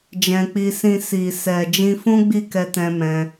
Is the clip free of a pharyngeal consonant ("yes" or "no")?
yes